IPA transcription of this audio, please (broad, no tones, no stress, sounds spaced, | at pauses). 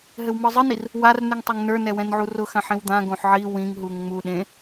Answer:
ɦ ɘ w m ə˞ zˤ ɘ n i r | w a r n ʉ ŋ tˤ ɛ ŋ n ə˞ n ɛ w ɛ̃ n ʕ u r ʊ x ã ħ ĩ w d̪ ã ɡ õ ħ ʕ i w ĩ ŋ ɦ u ŋ ŋ͡m u ɗ ẽ